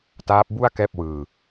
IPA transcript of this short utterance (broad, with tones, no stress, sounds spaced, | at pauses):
t aː˦˥ p̚ b u˥˩ a̯ k ɛː˥˩ p̚ w ɯː˧